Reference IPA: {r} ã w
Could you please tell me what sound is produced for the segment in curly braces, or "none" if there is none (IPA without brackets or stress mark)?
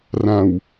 r